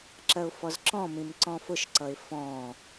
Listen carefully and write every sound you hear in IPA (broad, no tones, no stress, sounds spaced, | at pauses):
ǁ ɜ ʊ̯ f ɔ z ǁ ɔ̃ m ĩ m ǀ ɔ̃ f ʊ ʃ ǀ ʌ ɪ̯ f ɔ̃